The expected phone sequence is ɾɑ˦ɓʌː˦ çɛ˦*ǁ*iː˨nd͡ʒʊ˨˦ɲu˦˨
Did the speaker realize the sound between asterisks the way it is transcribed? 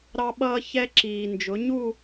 yes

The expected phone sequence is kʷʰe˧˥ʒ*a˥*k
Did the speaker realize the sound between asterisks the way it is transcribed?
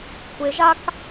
yes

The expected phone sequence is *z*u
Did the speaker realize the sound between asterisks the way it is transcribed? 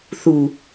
no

